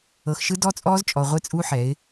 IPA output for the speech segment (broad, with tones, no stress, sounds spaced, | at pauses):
ɤ˨ x ʃ ɯ˦ d ɔ˦ t͡sʼ ɔː˦ z t͡ʃʼ ɔ˨ ʁʷ e˦ t͡sʼ u˦ ħ ɛ˨˦ ɪ̯